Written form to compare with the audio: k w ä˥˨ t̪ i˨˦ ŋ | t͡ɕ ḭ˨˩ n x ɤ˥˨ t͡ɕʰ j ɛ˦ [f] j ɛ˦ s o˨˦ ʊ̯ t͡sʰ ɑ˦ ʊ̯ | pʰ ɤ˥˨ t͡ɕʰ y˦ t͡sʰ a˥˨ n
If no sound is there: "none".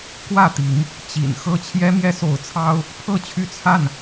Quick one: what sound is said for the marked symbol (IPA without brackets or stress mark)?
m